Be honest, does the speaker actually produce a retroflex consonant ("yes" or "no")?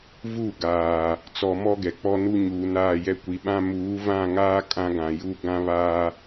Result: no